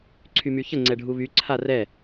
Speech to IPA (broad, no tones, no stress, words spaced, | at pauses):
ǀʰymyçə ŋ͡ǀɛɖʱuβy ǀʰarɛ